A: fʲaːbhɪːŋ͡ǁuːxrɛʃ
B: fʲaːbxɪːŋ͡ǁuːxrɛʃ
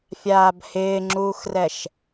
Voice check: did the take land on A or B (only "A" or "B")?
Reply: A